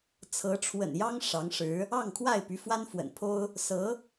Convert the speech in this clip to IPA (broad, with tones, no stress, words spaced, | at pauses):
t͡sʰɤ˧˥ ʈ͡ʂʰwə̰˨˩njɑ˥ŋ ʂɑ˧˥ŋʂɻ̩˧˥ | ɑ˥˧ŋkʰwa˥˩ɪ̯ py˧˥fwa˥nfwə̰˨˩npʰo˥ʊ̯ | sɤ˧˥